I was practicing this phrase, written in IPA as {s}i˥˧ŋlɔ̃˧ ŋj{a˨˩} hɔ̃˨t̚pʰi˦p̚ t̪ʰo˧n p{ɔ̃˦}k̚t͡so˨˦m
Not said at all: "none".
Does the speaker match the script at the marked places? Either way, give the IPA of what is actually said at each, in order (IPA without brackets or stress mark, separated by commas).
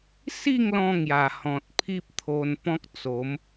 s, a˨˩, ɔ̃˦